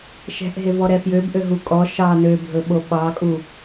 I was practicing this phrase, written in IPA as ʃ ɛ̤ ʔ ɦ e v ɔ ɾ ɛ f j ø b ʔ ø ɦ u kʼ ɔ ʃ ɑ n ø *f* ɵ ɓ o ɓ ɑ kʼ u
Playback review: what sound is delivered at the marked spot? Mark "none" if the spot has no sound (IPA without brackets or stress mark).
bʱ